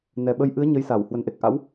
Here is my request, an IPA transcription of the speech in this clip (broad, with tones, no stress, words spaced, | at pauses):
nɛ˨˩ɓə˧j ʔɨ˨˦ə̯ ɲə˨˦jsa˧˩w hwə˧˩nʔe˨˩k̚ ʔa̰˧˥w